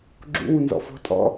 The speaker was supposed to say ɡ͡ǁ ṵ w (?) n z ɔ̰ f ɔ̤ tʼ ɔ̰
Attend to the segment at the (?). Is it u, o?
u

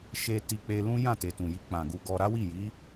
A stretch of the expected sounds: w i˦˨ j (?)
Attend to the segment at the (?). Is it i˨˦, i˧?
i˨˦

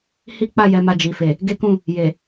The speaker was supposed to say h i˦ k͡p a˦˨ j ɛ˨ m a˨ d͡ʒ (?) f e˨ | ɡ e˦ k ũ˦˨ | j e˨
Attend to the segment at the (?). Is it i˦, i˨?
i˨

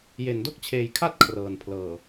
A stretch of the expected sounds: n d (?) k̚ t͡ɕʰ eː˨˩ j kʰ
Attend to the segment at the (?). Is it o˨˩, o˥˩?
o˥˩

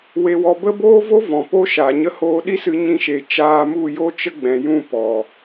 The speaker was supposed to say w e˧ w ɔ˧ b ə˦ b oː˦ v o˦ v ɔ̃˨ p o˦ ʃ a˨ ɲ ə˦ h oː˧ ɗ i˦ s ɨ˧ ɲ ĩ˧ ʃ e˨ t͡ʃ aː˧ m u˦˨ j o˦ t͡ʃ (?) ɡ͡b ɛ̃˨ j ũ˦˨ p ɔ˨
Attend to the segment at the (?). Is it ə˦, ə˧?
ə˦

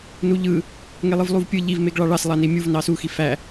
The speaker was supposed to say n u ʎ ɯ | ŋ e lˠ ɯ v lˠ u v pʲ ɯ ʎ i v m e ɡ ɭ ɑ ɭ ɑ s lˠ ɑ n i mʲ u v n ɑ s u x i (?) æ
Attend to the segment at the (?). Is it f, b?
f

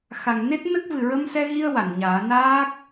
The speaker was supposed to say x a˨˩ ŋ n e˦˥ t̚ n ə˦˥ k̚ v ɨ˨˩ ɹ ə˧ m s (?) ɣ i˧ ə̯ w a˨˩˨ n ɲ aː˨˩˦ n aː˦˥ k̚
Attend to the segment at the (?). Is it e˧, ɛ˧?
ɛ˧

